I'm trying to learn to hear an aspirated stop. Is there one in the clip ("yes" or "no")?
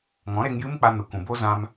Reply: no